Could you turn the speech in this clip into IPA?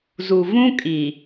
z u˨ v ũ˦ kʼ i˨

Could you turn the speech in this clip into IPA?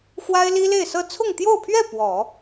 x w a˥ ɪ̯ l i˥ l e˥˧ ɪ̯ s ɤ˥˧ t͡sʰ ʊ˥˧ ŋ t̪ j o˥˧ ʊ̯ pʰ ɥ ɛ˥˩ p w ɔ˨˩˦

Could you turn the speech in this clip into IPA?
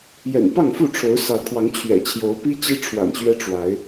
j ɛ̰˨˩ n p ɑ˥˨ ŋ f u˥˨ ʈ͡ʂʰ o˨˦ ʊ̯ s ɑ˨˦ ʊ̯ kʰ w ɑ˨˦ ŋ t͡ɕʰ ɥ ɛ̰˨˩ t͡ɕʰ j o˨˦ ʊ̯ p i˦ t͡ɕ i˦ ʈ͡ʂʰ w a̰˨˩ n ɕ ɥ ɛ˦ ʈ͡ʂ w a˨˦ ɪ̯

